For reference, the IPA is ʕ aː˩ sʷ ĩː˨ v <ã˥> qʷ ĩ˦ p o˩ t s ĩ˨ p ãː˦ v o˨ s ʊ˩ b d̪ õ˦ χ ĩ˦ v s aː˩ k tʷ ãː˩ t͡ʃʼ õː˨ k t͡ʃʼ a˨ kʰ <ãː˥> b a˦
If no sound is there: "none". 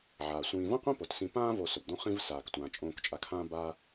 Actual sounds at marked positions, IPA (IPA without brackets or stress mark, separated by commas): ã˥, ãː˦